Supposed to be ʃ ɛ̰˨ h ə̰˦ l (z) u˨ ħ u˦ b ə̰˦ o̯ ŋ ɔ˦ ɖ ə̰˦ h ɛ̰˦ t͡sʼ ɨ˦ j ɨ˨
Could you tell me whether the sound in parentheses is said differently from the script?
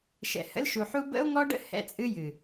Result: yes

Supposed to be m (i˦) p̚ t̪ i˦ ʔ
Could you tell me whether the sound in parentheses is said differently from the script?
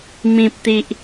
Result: yes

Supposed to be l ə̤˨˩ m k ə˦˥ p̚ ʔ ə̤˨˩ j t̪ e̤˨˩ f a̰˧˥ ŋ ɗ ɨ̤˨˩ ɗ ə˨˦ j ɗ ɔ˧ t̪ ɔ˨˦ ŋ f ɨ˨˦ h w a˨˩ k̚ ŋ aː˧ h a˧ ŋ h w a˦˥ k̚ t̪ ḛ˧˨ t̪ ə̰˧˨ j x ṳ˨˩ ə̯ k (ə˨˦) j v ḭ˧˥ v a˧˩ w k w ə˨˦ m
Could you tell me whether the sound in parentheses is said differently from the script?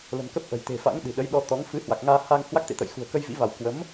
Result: yes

